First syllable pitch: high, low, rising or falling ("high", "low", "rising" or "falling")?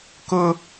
high